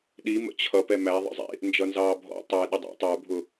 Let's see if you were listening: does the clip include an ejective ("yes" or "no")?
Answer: no